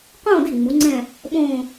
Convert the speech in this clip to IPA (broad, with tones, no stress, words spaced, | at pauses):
qõː˥˧de˥˩ ŋ͡mu˨˥ŋ͡ǀɛ̃˥˧ | ɓõː˥˧